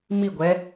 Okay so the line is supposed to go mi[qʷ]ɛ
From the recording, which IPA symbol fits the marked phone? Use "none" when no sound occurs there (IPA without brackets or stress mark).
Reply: ɡʷ